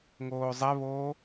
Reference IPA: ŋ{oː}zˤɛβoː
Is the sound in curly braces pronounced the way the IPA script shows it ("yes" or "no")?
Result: yes